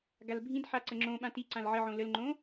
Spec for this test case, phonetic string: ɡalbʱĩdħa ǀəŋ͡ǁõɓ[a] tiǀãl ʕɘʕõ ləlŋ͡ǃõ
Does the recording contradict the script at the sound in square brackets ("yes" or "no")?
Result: yes